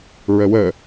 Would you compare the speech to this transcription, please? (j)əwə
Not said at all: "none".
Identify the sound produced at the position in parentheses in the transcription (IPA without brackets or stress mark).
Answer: ɹ